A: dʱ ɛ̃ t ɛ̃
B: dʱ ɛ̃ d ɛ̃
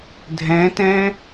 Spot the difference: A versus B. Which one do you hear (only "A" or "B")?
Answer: A